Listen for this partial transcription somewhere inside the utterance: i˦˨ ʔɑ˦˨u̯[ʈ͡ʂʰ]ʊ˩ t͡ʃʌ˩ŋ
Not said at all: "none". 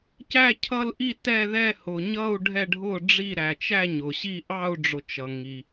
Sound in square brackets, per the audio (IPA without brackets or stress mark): ɖ͡ʐ